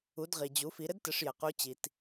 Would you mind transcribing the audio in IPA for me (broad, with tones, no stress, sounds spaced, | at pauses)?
u˩˧ d ʁ i˩ d͡ʑ u˩˧ f i˩˧ ɾ ɘ˥ d t ɘ˩˧ ʂ j ɘ˩ q u˧˥ t͡ɕ i˩ t